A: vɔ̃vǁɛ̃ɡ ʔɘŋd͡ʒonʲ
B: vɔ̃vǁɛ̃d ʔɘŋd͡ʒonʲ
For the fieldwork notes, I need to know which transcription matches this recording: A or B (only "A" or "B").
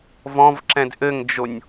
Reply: B